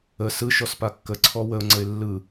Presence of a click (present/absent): present